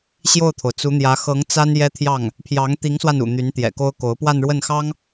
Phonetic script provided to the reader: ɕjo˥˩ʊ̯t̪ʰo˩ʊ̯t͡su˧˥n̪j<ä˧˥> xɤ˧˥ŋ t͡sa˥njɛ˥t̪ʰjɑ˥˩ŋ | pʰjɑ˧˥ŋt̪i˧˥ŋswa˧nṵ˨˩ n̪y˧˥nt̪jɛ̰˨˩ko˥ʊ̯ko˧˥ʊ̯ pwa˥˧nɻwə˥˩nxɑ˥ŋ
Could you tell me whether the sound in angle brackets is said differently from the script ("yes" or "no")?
no